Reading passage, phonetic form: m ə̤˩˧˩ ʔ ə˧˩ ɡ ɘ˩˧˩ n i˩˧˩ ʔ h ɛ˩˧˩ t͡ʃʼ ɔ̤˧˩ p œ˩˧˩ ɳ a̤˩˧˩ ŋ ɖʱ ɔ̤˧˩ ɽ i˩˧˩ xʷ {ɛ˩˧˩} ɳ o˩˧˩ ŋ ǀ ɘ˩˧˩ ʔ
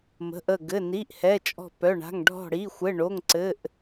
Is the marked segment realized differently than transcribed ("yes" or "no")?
yes